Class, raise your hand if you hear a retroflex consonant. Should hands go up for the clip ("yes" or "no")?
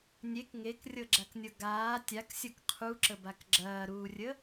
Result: no